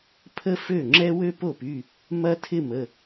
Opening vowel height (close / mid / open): mid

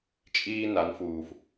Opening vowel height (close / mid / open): close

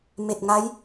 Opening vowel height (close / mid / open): mid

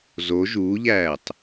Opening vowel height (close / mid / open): mid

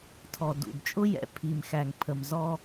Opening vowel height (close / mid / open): mid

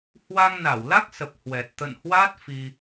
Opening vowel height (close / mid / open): open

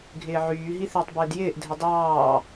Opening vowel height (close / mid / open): close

